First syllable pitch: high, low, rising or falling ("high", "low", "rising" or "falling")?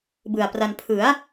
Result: low